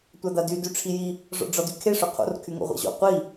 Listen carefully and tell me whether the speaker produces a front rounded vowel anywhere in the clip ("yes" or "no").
yes